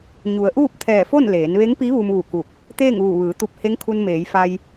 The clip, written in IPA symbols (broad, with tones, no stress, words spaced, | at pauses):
ɲu˩˧ə̯ʔuː˥˨p̚t̪ʰɛː˧˩fo˥˨n leː˩˧nʋe˧˥ŋpi˧˥ ʋu˧mʋu˧˩ku˧˩k̚ | t̪eː˥˨ŋʋuː˧˩ʋɯː˩˧t̪u˧p̚ he˧˥ŋkʰu˧nmeː˩˧jfa˧j